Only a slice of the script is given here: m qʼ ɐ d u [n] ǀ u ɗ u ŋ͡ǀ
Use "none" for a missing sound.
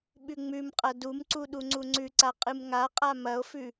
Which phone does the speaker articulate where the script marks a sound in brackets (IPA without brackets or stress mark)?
m